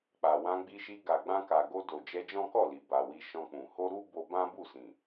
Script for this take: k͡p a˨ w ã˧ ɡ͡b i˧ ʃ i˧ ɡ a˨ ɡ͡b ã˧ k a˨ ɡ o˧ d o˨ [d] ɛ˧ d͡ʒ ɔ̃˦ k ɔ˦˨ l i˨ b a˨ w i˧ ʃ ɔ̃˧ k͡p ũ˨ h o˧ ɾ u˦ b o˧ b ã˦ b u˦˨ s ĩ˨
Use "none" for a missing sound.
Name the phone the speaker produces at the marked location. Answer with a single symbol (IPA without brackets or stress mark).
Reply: d͡ʒ